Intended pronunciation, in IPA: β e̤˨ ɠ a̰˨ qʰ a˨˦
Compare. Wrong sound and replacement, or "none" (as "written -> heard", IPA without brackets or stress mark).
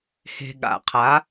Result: β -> h